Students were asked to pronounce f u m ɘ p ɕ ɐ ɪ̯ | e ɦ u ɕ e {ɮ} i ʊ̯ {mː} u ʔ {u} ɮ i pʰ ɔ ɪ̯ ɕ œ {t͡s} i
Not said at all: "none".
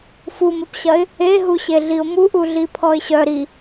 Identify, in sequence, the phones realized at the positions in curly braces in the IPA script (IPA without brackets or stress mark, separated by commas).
ɮ, m, u, ɾ